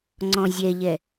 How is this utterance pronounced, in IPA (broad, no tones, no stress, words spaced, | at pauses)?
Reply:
ŋ͡ǀɔ̃zʲɛʎɛ